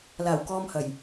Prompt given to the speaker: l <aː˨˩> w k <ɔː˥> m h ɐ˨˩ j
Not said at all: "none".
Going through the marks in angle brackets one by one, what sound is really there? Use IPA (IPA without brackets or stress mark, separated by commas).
aː˨˩, ɔː˨